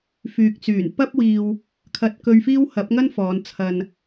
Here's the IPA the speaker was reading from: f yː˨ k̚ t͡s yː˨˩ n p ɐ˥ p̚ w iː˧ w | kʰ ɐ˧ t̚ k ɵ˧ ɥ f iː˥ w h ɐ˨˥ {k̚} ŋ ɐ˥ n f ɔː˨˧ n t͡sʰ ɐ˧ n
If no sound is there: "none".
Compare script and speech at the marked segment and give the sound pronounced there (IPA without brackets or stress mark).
p̚